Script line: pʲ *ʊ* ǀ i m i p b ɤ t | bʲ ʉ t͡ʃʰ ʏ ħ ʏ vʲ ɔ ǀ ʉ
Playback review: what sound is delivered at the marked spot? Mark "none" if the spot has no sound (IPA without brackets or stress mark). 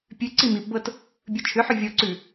ʉ